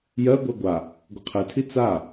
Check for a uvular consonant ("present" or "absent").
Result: present